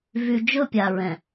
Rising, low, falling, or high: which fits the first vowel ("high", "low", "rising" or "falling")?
low